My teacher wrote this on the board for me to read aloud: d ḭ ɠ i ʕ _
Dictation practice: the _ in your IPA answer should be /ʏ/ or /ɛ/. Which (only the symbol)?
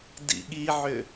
ʏ